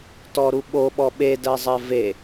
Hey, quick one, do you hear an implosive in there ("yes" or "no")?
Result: yes